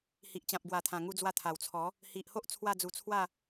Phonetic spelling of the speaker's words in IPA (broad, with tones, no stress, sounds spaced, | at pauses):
h i˨ ʔ t͡ɕ ã˨ p̚ ɡ w a˨˩ t̪ʰ ã˨˩ ŋ u˧ d͡z w a˧ t̪ʰ a˨˩ w t͡sʰ ɔ˨˦ | h i˨ ʔ h o˦ ʔ t͡sʰ w a˥˧ d͡z u˧ t͡sʰ w a˥˧